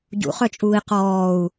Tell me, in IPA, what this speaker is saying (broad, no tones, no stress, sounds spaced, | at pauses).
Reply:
ɟ ṵ χ œ t͡ʃʼ uː i̯ q ɔː u̯